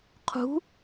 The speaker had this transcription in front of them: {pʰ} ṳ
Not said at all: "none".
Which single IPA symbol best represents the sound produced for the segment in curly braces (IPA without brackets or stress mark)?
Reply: qʰ